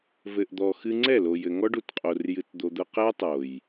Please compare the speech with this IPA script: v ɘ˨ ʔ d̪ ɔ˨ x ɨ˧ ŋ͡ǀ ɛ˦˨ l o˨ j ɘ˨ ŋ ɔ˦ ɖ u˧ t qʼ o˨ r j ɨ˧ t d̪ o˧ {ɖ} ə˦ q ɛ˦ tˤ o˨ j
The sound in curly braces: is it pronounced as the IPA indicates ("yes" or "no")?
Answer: no